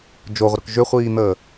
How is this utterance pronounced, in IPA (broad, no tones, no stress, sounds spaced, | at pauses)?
d͡ʒ o ʁʷ ə ɾ ʏ k ʒ ʏ χʷ iː n̪ əː